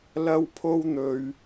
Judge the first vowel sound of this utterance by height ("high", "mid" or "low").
low